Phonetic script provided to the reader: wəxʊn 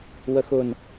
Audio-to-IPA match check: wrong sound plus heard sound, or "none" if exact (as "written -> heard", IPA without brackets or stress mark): none